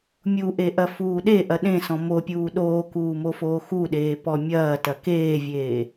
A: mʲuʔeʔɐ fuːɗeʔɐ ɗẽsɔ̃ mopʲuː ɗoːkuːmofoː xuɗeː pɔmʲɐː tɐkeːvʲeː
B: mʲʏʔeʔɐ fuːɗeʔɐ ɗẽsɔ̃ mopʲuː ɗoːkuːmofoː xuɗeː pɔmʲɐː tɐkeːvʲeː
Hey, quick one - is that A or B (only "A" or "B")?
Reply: A